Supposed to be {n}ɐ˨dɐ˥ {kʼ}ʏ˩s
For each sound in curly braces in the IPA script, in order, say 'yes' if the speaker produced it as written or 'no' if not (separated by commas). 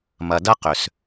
no, no